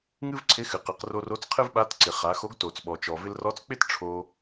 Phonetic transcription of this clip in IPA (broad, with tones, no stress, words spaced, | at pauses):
ŋɨ˥vǀʰɪ˧˥ xɨ˩qɨ˩˧qro˧ro˧˥t͡s qʰɨ˥vɓa˧˥tǀɪ˩ χa˩˧xo˧˥ɡto˩t͡s ɓɔ˩t͡ʃɔ˩vɪ˧l rɔ˧˥t͡sk͡pɪ˥t ʈ͡ʂʰo˧